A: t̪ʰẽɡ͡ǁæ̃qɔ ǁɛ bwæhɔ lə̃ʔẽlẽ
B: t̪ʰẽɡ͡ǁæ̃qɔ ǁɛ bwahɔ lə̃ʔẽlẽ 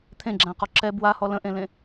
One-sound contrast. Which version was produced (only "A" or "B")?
B